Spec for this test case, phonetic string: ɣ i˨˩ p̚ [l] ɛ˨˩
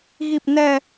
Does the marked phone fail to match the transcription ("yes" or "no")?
yes